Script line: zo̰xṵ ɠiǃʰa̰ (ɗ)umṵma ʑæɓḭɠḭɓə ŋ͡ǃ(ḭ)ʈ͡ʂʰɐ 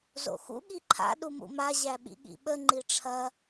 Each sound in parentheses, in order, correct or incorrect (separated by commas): correct, incorrect